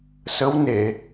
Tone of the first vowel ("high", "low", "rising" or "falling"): rising